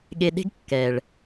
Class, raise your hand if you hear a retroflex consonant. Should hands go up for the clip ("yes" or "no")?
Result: yes